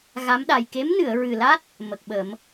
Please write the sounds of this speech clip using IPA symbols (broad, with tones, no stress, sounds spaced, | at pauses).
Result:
ɣ a˧˥ m ɗ a˨˩ j k e˧˥ m n ɨ˨˩˨ ə̯ ɹ ɨ˨˩ l a˦˥ t̚ | m ə˨˩ k̚ ɓ ə˨˩˦ m